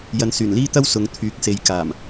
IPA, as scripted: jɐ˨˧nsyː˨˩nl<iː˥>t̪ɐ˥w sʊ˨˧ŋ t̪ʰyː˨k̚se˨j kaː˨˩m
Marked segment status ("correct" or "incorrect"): correct